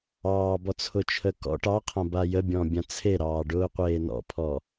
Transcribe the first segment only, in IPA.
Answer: ɑː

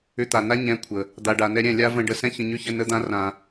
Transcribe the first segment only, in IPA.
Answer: ʏ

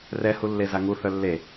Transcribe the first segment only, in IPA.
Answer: r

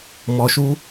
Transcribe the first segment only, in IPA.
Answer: m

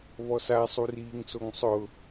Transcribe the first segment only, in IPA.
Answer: β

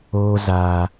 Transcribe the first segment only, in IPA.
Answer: oː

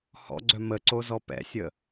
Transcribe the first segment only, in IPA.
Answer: h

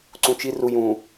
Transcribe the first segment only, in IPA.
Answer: ǀ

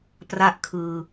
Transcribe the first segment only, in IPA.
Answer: p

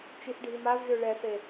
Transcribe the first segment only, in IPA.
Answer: t͡ʃ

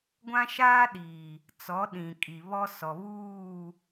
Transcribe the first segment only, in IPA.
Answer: ɡʷ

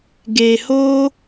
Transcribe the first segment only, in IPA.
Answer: ɡ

